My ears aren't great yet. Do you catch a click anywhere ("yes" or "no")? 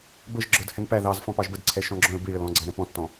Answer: yes